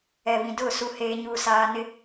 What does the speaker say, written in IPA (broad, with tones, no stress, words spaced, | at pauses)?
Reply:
ɛ˨βĩ˨dʊ˦˨ su˦heː˦ ɲuː˦saː˦nɪ˦